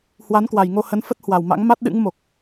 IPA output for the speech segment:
h w a˨˦ n k w a˨˩ j ŋ o˧ h ə˨˦ n f ə˦˥ t̚ h w a˨˩ w m a̰˧˥ ŋ m a˦˥ t̚ ɗ ɨ̰˧˥ ŋ m o˨˩ k̚

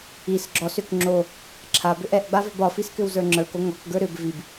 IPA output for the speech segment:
i s ɡ͡ǁ ɔ s ʏ k ŋ͡ǁ o | ǁʰ a b ʏ ʔ ɛ ʔ ɡ͡b a v ʏ b ɒ f i s k ʏ w z ə˞ ŋ͡ǁ ə˞ k o ŋ ɔ k ɡ ə˞ ɾ ʏ b v i b

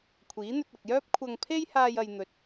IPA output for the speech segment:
kʷʰ iː˨˥ n̪ ɵ˧ t̚ ɐ˨ k̚ j œː˥ p̚ kʷʰ ɐ˧ ŋ pʰ e˥ j h aː˧ j ɐ˨ j n̪ ɵ˨ t̚

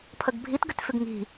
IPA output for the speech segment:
pʰ ə ɡ bʱ i t ɡ ʏ t f ʏ ɡ ŋ i̤

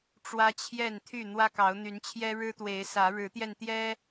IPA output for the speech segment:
ʈ͡ʂ w ä˦ t͡ɕʰ j ɛ˥˨ n t̪ʰ y˥˨ n̪ w ä˦ k ɑ˨˦ ʊ̯ n̪ y˨˦ n t͡ɕʰ j ɛ˦ ɻ ɻ̩˦ t̪ w e˨˦ ɪ̯ s ä˨˦ ɻ ɻ̩˨˦ t̪ j ɛ˧ n t̪ j ɛ˦

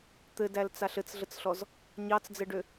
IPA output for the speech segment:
t̪ ɘ d æ l t͡s a ɬ ɘ t͡s ɮ ə t͡s ɬ ɔ z | ɲ ɑ t͡s d͡z ɘ ɖ ø

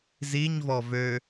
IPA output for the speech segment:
z i ɲ v ɔ v ø

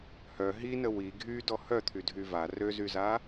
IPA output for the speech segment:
h œ ɦ i n ə w i ɡʱ y d ɔ h œ t̪ʰ y dʱ y v a r ø z y z a

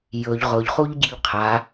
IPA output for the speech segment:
j ɵ ʎ ʁ ʊ ʎ χ u ʎ ɟ i ʎ qʰ a

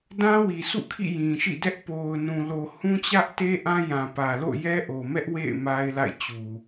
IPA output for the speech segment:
d ã˦ w i˨ sʰ ṵ˦˨ kʰ ḭ˦˨ j ĩ˨ ʃ ḭ˦˨ d ɛ˦ ʔ p o˨ ʊ̯ n ũ˨ l o˨ h ũ˦ t͡ɕ ä˦ ʔ t e˦ ʔ ã˦ j ã˨ p ä˨ l o̰˦˨ j ɛ˦ ʔ o˨ m ɛ˦ ʔ w ḛ˦˨ ɪ̯ m a˦ ɪ̯ l a̰˦˨ ɪ̯ t͡ɕ u˨

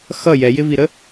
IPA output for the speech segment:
x ʌ j ɛ j ɪ v i ɾ ə

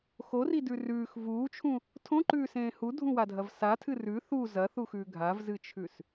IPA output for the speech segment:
x o r i d ʉ r ʉː x v uː t͡ʃʰ ũ | tʰ õ ǃ ʉː s ẽː h u dʱ ũ w a dʱ ɐ v s a tʰ ɨ r ʉ θ u z ɐ θ u x ʉː ɡʱ a v z ɨ t͡ʃʰ ʉ s

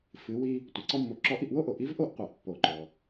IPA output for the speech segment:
f ɨ˩˧ w i˧ | tʷ i˩ ǀ ɔ˥ mː o˧ ǁ ɔ˧˥ ʔ i˧ ʔ w o˥ ʔ o˩ ʔ i˧˥ v ʔ o˥ ʔ qʷ æ˩˧ ʔ pː o˩ ǃ ɔ˩

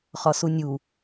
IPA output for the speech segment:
χ ɒ s u nʲ u

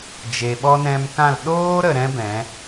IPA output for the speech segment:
d͡ʒ e˨ ɓ ɔ˧ n ɛ̃˧ m k ã˦˨ l ɗ oː˦ ɾ ə˨ ɾ ɛ̃˦ b ɛ̃˨˦

